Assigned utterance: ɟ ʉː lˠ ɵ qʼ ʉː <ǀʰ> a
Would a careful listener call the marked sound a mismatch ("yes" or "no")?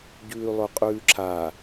yes